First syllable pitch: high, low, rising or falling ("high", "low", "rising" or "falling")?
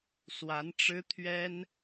rising